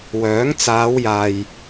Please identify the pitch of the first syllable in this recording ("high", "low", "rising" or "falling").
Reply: rising